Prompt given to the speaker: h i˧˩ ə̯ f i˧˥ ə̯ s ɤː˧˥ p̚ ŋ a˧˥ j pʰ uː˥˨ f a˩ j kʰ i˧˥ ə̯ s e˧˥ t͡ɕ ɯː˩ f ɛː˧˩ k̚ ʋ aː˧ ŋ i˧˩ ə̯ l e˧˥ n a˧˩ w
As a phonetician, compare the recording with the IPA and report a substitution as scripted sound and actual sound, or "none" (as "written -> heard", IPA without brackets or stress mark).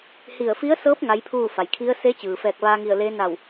none